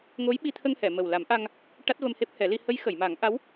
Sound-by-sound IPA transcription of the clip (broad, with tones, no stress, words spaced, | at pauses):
ŋo˧˥j ɓi˧t̪ʰə˧ŋhɛ˨˩˨ mə˨˩w la˨˩˦mʔa˧ŋ | ʈa˦˥t̚və˧m he˦˥p̚hɛ˨˩˦li˧ hə˧˥jxə˨˩˨jma˨˩˦ŋʔa˧˥w